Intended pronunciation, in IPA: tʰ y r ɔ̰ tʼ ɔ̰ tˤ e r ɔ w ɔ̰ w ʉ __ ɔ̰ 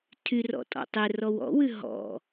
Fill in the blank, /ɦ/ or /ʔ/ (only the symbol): ɦ